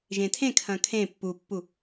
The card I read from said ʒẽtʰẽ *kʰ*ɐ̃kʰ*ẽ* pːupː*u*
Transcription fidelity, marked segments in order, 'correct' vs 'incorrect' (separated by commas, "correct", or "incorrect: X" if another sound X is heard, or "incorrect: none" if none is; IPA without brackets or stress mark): correct, correct, correct